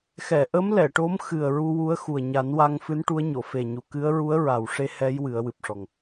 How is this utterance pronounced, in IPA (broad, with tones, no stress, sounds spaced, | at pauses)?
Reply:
x ɛ˨˩˨ ʔ ə˧˥ m l ɛ˨˩˨ ʈ o˧˥ m x ɨ˨˩ ə̯ ɹ u˧ w u˧˥ ə̯ x u˨˩ ə̯ ɲ a˨˩˦ n w a˧ ŋ f ɨ˧˥ n ʈ u˧˥ ə̯ ɲ o˨˩˨ f e˨˩ ɲ u˨˩˨ k ɨ˧˥ ə̯ ɹ u˧˥ ə̯ ɹ a˨˩ w ʂ e˧ h ɛ˧˥ j w ɨ˨˩˦ ə̯ w ɨ˨˩ p̚ ʂ ɔ˨˩ ŋ